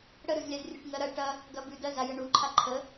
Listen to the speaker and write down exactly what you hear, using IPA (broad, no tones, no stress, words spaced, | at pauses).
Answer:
ɽəɾʉzlʲazrʲuʈ ŋɜɾɐ ʈɐ | ɡɐbʉ dɜ zajəɳuǃʰa ǃʰə